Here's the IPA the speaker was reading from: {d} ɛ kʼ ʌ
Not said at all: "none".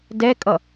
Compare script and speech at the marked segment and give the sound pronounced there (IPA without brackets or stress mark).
d